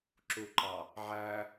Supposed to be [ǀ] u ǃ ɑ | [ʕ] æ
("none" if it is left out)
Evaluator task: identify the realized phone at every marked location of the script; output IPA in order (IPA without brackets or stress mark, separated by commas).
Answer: ǁ, ʕ